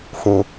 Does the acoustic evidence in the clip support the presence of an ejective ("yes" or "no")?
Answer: no